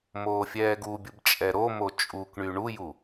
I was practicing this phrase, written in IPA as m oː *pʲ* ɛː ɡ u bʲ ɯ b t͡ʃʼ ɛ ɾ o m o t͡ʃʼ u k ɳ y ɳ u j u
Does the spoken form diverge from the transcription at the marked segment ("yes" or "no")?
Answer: yes